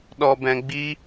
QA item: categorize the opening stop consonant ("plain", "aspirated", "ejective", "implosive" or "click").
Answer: implosive